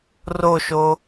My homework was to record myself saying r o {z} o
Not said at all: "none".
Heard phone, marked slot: ʃ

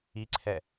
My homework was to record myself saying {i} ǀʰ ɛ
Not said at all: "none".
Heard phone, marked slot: i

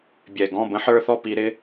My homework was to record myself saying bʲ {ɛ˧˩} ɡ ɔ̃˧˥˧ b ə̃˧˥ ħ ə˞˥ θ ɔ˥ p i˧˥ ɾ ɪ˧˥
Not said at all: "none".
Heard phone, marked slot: ɛ˧˩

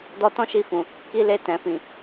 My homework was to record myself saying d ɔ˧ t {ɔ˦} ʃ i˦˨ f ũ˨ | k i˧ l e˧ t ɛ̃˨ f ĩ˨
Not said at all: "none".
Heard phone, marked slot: ɔ̃˦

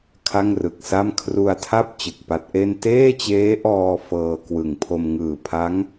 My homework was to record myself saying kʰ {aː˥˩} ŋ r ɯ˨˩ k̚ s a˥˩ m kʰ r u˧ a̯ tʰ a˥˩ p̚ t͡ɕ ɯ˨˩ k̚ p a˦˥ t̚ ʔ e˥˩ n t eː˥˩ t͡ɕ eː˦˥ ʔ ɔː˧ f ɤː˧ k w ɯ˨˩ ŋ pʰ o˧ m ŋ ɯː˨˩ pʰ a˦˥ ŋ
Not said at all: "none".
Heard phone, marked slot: a˥˩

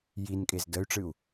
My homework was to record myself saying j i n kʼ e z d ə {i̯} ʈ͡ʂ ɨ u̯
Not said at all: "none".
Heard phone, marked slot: y̯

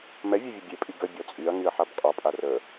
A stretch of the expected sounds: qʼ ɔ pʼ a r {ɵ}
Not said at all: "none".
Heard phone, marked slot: ə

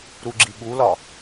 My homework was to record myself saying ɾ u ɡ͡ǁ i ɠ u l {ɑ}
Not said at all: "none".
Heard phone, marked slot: ɒ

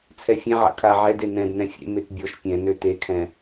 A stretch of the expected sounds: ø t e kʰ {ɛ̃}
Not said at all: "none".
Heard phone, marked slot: ɛ̃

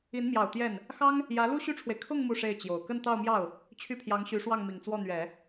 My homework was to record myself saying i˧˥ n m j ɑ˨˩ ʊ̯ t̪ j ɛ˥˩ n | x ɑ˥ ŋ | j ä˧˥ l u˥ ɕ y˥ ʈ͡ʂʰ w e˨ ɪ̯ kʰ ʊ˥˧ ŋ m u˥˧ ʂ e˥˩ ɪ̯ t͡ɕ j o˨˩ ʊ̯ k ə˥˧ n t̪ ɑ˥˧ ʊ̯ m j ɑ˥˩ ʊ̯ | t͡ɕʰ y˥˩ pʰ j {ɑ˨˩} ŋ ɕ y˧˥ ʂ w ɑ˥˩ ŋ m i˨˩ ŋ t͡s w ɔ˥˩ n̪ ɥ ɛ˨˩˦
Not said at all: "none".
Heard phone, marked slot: ɑ˧˥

